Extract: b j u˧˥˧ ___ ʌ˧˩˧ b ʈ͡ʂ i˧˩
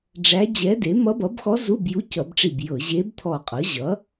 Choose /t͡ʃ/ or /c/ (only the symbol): c